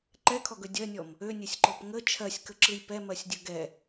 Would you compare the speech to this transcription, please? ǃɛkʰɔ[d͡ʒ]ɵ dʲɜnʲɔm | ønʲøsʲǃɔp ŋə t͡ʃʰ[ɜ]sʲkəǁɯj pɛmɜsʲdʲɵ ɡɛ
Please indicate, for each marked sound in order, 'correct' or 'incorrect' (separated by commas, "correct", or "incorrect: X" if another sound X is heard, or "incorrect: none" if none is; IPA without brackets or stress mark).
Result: incorrect: ɡ, correct